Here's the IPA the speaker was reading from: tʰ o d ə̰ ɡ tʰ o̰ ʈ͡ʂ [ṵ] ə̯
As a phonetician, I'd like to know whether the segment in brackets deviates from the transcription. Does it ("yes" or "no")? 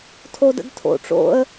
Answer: yes